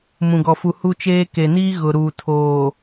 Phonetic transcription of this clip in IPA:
m ũ˨ ɡ ɔ˨ f u˨ h u˦ t͡ʃ eː˦ k e˨ n iː˦ ɣ ʊ˨ ɾ uː˨ tʰ oː˨

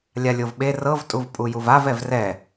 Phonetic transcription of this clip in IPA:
lʲ a lʲ o v ɓ e r ɤ v tʼ u v pʼ u j u v a v ɛ v r ɛ

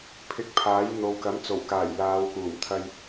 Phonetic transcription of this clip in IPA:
pʰ ɪ˧ k̚ pʰ aː˨˥ j n̪ o˨ w k ɐ˨˥ m t͡s o˨˩ w k aː˨˩ j l aː˨˧ w k uː˨˩ m t̪ʰ ɐ˧ j

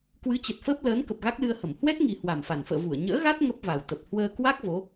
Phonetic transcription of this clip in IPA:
k w ɨ˨˦ t͡ɕ ə˨˩ t̚ f əː˦˥ p̚ l əː˨˦ n k ə˨˩ p̚ ɣ a˦˥ k̚ l ɨ˧ ə̯ h ə˧˩ m h w ɛ˦˥ t̚ ŋ i˨˩ h w a˨˩ m f a˨˩ n f ə̰ː˧˨ v u˧˩ ə̯ ɲ ə̰ː˧˥ ɣ a˦˥ t̚ ŋ ə˦˥ p̚ v a˨˩ w t̪ ə˨˩ p̚ h w əː˧ k w a˦˥ k̚ v o˨˦

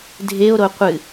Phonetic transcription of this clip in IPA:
dʱ e o̯ ɾ o qʷ ɨ

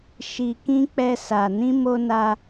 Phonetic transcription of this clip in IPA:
ʃ i˨ k ĩ˧ k͡p ɛ˧ s a˨ n ĩ˧ m o˧ n a˧

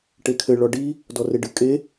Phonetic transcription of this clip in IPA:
ʈ e kʰ ɘ ɭ ɔ ɖ i | d ɔ r e ɖ ɨ kʼ e

